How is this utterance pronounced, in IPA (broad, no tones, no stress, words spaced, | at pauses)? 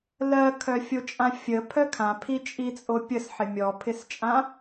lɜkʰœfʲot͡ʃʼã fʲəpʰœ kʰãpʰit͡ʃʼit͡sʼo pʲəsħɪ mʲɔpʰɪst͡ʃʼã